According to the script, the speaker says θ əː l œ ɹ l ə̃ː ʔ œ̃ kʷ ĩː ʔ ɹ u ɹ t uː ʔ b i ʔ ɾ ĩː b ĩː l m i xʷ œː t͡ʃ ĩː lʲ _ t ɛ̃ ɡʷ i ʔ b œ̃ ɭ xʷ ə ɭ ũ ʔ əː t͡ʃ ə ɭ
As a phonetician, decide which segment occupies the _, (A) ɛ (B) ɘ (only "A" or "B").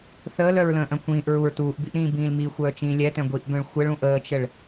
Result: A